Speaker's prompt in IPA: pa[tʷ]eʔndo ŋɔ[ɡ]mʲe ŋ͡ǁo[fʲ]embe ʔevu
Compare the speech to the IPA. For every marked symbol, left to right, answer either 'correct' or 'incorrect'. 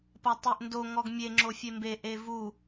incorrect: tˤ, correct, correct

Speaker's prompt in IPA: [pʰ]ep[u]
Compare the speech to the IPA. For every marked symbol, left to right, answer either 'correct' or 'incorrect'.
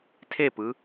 incorrect: tʰ, incorrect: ɯ

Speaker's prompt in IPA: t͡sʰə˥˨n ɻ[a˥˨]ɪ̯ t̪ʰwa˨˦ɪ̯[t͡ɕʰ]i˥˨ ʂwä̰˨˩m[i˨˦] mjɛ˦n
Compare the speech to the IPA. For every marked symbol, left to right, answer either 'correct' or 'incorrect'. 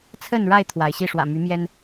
correct, incorrect: ɕ, incorrect: y˨˦

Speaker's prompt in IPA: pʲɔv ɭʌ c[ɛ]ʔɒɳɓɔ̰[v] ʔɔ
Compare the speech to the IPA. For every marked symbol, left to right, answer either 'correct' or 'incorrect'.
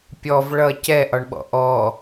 correct, incorrect: none

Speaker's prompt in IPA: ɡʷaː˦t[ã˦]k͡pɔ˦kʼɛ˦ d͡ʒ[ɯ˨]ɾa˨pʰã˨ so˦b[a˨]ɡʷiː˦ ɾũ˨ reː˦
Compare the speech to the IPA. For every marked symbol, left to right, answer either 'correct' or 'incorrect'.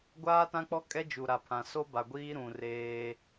correct, incorrect: u˨, correct

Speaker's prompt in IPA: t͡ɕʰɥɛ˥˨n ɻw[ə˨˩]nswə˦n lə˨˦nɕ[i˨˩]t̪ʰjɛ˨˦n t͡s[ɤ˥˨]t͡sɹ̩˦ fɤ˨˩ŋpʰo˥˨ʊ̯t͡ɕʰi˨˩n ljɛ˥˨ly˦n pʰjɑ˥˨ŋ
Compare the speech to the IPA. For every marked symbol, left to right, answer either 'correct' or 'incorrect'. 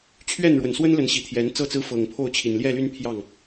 correct, correct, correct

